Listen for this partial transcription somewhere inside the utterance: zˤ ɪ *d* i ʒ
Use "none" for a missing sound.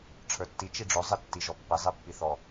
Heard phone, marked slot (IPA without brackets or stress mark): tː